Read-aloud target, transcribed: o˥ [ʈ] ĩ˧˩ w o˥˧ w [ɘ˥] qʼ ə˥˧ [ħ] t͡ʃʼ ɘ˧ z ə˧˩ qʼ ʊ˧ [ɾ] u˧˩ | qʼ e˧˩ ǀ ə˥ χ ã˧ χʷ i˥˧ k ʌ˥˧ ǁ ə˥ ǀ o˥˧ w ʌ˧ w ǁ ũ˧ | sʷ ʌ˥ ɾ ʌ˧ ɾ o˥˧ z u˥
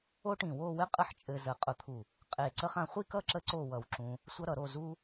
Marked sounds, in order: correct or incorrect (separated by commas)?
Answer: correct, correct, correct, incorrect